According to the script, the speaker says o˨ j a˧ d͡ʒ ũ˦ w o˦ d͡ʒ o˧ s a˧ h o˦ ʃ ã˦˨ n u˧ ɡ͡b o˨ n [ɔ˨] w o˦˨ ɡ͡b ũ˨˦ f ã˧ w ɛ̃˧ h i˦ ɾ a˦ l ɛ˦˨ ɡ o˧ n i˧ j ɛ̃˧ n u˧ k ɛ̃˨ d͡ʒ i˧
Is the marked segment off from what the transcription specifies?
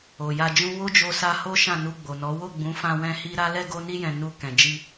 yes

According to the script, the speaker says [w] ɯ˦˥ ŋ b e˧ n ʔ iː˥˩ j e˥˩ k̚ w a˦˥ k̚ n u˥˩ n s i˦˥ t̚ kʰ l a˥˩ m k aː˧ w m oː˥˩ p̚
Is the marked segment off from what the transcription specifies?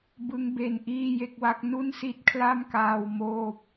yes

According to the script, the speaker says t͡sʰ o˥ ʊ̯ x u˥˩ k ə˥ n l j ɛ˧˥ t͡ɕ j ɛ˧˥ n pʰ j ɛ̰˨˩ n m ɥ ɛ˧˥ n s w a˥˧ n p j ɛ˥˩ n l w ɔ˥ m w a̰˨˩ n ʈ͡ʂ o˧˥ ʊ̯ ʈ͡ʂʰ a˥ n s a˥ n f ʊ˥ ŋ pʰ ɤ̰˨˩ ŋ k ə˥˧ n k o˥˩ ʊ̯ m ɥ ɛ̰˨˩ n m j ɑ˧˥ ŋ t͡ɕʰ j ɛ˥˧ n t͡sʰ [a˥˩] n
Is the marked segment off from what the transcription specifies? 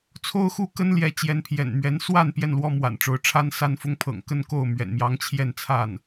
no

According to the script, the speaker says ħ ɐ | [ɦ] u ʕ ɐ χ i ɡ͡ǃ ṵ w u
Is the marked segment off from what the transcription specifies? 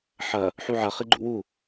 yes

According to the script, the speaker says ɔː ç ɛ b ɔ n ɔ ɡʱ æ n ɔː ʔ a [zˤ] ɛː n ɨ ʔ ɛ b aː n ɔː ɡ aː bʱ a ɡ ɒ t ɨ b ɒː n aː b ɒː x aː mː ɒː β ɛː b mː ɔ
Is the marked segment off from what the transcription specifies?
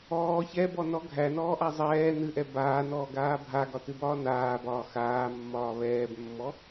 no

